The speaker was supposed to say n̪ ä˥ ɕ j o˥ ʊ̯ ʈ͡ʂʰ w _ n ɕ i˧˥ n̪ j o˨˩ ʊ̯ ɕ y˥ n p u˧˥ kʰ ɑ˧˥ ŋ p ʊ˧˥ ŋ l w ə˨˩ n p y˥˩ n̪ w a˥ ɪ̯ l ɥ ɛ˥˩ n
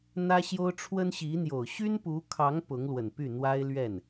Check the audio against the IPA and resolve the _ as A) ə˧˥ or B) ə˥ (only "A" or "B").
B